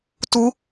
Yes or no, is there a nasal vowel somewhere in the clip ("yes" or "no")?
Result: no